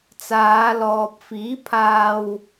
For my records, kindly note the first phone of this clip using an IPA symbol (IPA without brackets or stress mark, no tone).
t͡s